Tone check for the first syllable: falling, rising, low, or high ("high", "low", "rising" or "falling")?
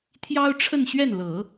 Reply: high